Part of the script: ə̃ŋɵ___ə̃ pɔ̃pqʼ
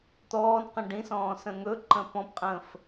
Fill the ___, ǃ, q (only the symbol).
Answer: ǃ